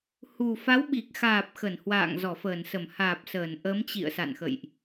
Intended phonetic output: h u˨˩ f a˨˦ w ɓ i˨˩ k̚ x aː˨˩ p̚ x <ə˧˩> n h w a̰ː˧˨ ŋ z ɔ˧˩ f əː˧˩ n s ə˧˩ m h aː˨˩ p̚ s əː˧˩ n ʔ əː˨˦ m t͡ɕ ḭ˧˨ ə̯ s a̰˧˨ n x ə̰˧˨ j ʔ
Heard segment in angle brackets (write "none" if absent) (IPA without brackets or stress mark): ə˧˩